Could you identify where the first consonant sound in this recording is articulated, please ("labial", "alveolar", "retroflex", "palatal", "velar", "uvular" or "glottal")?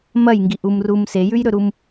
labial